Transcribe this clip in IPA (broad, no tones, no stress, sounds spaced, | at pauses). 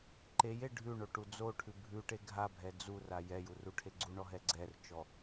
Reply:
ǃ e j e ɖʱ ʉ ɳ o ʈ u d͡z o ʈʰ ʉ bʱ ʉ ʈ e ɡʱ a bʱ ɛ d͡z u r a j ɛ j u r u ʈʰ e ɡ͡ǀ u ɳ ɔ ɦ ɛ ɡ͡ǀ ɛ r t͡ʃ ɔ